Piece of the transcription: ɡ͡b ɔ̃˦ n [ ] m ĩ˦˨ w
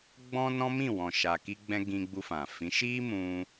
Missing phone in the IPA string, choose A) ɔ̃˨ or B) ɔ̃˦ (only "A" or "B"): B